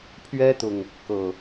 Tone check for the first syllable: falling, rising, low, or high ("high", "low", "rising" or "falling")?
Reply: high